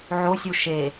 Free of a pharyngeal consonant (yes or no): no